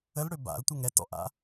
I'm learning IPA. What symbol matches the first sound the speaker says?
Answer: ə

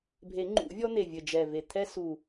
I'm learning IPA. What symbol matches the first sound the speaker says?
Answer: bʱ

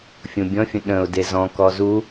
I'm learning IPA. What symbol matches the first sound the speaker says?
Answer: fʲ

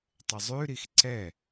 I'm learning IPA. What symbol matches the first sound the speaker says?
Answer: tˤ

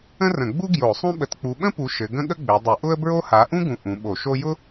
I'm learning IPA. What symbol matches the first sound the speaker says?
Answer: ə̃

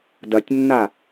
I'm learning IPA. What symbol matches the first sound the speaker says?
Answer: d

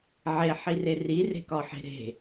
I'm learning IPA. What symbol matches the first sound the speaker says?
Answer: ʕ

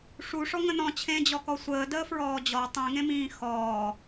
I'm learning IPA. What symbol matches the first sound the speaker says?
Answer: ʂ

